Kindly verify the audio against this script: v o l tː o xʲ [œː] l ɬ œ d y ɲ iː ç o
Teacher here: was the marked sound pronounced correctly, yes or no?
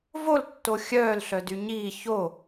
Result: yes